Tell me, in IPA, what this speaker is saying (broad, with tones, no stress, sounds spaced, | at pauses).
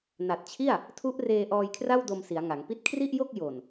n a˨˩ t̚ t͡ɕʰ i˥˩ a̯ | tʰ u˦˥ ʔ r eː˧ ʔ ɔː˧ j kʰ r a˥˩ w d o˧ m s i˩˦ a̯ ŋ a˩˦ ŋ p i˥˩ t̚ kʰ r i˥˩ ʔ j o˥˩ k̚ j o˨˩ n